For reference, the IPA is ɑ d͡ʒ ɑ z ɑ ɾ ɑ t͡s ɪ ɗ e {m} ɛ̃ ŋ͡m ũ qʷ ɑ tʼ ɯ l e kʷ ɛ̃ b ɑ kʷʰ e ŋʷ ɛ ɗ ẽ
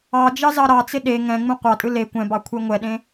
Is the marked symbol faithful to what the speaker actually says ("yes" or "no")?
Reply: no